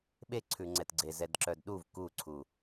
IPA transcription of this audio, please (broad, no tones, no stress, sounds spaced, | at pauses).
ɓ e ǀʰ ʉ ŋ͡ǀ ɛ t ɡ͡ǀ e z ɛ d ǁ œ d ɗ u v k u ǀʰ u